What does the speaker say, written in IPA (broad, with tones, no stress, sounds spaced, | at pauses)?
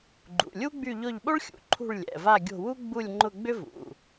ɡ͡ǃ ṵ˩˧˩ lʲ u˥ ɡ͡b y˦˨ ʎ ʊ˦˨ ʎ ɓ o˥ ɭ xʲ ṵ˩˧˩ ǃʰ ṳ˦˨ ɭ lʲ ɛ̰˩˧˩ v a˦˨ ɡʲ o̤˦˨ w u˥ ɡ͡b u˦˨ lʲ ŋ͡ǃ ʊ˦˨ ɡ͡b ʏ˥ v ṵ˩˧˩